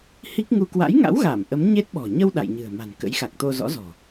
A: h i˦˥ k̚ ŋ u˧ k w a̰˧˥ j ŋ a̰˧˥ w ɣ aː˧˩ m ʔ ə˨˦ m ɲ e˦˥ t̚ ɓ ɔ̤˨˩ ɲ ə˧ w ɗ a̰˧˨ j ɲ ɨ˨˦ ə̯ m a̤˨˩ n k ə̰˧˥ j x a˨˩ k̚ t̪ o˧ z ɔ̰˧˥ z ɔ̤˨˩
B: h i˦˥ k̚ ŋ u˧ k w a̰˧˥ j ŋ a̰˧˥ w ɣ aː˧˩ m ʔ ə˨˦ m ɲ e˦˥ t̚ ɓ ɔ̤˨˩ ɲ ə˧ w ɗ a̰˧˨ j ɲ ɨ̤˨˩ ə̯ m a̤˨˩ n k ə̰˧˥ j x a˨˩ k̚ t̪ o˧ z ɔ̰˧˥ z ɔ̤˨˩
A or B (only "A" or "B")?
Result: B